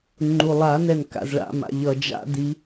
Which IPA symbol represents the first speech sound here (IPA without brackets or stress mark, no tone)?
ŋ͡ǃ